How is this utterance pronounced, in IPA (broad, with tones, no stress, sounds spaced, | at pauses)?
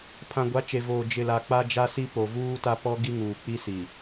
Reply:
pʰ ã˨ ɡʷ a˨˦ t͡ʃ e˨ v oː˨ d͡ʒ ɪ˨ l a˨ k͡p a˦ d͡ʒ a˦ s i˦ p o˨ v uː˦ t a˦ p ɔ˦ ɡ i˦ ŋ uː˨ k͡p i˦ s i˨